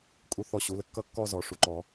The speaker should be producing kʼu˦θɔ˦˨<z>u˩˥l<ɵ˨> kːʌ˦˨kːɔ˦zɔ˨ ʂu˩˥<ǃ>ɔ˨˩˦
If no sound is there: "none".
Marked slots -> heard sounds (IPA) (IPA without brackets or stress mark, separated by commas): ɕ, ə˨, ǃ